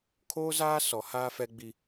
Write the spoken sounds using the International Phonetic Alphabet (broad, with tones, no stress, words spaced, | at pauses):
kʰoː˦zaː˦ sɔ˨˦ haː˦fɛ˦ɡ͡bi˦